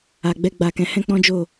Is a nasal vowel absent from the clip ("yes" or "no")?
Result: no